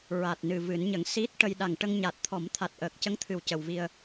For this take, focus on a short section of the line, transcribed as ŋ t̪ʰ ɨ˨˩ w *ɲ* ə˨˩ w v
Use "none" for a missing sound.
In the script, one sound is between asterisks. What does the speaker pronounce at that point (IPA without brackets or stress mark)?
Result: c